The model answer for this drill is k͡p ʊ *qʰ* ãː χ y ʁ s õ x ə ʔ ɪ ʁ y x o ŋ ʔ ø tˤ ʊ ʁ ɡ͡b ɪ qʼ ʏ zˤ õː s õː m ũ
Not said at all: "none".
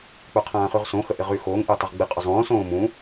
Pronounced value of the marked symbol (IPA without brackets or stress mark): qʰ